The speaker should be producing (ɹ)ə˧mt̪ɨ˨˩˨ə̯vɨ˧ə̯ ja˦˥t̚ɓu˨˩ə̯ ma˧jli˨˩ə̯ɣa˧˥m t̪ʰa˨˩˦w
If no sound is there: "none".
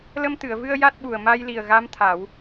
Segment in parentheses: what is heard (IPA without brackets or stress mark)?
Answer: l